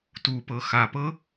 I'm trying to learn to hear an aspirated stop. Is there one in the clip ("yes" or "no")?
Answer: no